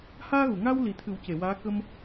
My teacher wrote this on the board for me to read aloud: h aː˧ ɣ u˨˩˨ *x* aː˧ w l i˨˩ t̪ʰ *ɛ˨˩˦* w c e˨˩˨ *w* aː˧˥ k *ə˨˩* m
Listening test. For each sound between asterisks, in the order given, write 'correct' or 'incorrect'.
incorrect, incorrect, correct, incorrect

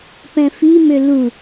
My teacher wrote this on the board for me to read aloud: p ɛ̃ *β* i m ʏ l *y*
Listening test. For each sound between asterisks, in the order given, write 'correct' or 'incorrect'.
incorrect, incorrect

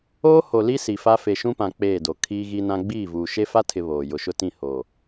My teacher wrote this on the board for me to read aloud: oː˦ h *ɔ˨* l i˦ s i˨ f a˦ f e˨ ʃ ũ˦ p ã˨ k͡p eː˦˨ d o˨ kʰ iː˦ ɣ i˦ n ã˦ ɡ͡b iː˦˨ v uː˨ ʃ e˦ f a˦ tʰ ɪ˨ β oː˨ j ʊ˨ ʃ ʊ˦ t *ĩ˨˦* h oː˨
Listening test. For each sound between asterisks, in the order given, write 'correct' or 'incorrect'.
incorrect, incorrect

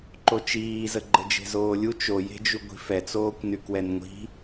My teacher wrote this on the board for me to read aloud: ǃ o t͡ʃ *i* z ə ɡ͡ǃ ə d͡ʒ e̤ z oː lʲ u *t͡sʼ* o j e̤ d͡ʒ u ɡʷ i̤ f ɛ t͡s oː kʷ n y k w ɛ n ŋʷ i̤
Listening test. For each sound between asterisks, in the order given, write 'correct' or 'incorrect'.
incorrect, incorrect

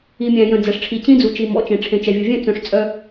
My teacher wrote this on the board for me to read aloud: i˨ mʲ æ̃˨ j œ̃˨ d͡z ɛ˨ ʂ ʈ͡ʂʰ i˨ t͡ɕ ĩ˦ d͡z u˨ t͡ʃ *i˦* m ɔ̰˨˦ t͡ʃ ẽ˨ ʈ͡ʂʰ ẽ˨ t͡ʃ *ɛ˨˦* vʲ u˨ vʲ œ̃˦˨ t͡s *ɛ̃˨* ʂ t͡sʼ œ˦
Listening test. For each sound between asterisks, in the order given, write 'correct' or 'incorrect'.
incorrect, incorrect, incorrect

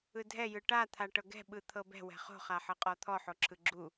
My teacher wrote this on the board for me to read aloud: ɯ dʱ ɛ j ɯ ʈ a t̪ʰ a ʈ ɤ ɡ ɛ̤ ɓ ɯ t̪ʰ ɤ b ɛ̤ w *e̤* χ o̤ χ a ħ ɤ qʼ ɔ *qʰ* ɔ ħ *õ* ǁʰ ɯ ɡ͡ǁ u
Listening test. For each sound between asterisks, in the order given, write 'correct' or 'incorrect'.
incorrect, incorrect, incorrect

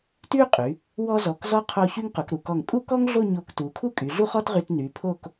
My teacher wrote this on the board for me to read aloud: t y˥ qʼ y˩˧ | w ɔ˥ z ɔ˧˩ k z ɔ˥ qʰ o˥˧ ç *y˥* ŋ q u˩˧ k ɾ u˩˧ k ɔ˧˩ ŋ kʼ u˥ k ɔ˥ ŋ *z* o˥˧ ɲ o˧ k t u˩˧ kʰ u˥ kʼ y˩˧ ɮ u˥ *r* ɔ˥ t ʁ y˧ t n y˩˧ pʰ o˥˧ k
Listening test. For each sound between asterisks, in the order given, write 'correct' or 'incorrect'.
correct, incorrect, incorrect

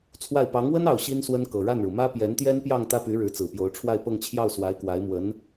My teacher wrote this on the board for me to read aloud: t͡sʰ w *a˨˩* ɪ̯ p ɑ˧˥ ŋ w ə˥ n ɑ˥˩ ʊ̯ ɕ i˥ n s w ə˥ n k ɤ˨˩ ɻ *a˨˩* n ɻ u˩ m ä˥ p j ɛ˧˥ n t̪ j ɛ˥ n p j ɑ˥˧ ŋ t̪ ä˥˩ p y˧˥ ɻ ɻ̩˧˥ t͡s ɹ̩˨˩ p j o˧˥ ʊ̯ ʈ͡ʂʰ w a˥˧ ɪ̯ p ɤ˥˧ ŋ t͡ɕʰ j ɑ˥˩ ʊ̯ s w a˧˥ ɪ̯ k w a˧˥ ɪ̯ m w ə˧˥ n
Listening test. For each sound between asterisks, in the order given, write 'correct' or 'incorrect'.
incorrect, incorrect

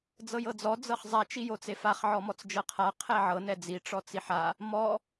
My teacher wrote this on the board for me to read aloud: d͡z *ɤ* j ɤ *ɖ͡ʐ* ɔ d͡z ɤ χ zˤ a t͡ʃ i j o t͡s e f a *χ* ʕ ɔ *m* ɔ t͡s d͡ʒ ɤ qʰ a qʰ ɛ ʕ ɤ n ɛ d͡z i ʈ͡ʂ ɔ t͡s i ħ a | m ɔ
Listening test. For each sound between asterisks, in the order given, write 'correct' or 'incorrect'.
correct, incorrect, correct, correct

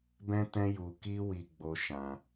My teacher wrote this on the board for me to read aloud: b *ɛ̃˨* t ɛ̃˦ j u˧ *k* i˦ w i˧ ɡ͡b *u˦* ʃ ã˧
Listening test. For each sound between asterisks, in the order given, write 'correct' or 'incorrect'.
incorrect, correct, incorrect

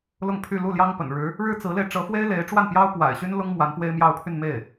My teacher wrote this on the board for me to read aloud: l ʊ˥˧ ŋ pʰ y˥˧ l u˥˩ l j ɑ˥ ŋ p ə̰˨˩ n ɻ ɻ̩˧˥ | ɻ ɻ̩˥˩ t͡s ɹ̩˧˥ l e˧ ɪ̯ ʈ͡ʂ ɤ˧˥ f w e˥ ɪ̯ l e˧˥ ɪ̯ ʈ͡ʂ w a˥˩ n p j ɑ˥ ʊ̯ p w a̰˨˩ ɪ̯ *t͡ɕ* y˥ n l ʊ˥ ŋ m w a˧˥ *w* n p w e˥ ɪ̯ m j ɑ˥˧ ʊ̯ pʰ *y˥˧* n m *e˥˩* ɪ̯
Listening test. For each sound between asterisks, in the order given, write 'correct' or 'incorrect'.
incorrect, incorrect, correct, correct

